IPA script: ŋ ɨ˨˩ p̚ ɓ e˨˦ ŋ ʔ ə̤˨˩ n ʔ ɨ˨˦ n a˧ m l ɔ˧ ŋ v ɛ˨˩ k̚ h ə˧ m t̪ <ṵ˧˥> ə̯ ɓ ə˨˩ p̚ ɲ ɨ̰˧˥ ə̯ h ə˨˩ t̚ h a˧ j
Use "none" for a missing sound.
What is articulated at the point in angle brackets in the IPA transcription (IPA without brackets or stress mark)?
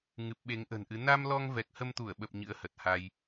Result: u˧˩